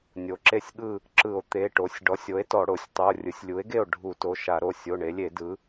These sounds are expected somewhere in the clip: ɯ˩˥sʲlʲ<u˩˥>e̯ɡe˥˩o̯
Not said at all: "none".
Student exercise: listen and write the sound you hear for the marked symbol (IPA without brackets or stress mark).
u˩˥